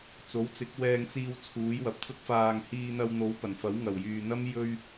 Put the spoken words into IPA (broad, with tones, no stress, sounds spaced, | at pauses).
t͡s o˨˥ w t͡s ɪ˨˥ k̚ w ɛː˧ ŋ t͡s iː˧ w t͡sʰ uː˨˥ j w ɐ˨ p̚ t͡s ɐ˥ t̚ f aː˧ ŋ h iː˧ n̪ ɐ˧ w n̪ o˨˥ w p ɐ˨˩ n f ɐ˨˥ w ŋ ɐ˨˩ w j yː˨ n̪ ɐ˥ m j ɵ˧ ɥ